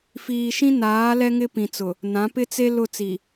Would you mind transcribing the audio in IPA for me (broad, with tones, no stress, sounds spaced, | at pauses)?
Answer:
f iː˨ ʃ ĩ˦ n aː˨˦ l ɛ˦ ŋ ɪ˦ p ĩ˨ t͡s ʊ˨ | n ã˨˦ p ɪ˦ t͡s e˦ l ʊ˦˨ t͡s i˨